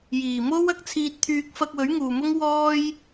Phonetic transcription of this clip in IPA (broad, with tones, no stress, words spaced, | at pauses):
jiː˨˩mo˥w ɐ˥k̚t͡sʰiː˧t̚t̪ʰyː˧k̚ fɐ˧k̚wɵ˨˥ɥ ŋuː˨mʊ˥ŋ wɔː˥j